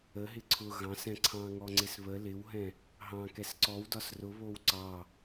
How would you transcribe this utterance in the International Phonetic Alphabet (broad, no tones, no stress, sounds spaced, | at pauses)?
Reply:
ə ɦ ɪ ǀʰ ʊ ɣ ɑ̃ s ɛ̃ ǀʰ ɑ̃ ŋ ɔ ŋ͡ǀ ɪ s β ə l ɪ w ɦ ɛ̃ | ɦ ɑ̃ k ɛ s ǀ ɔ w d ɒ s r ʊ β o w ǀ ɑ